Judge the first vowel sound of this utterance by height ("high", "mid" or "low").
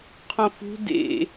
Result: mid